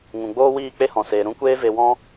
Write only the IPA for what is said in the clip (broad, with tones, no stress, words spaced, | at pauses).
ŋũ˨ɡ͡boː˦wiː˦˨ k͡pe˦hɔ̃˨seː˨ ɾũ˦kʷeː˦ve˧wɔ̃˦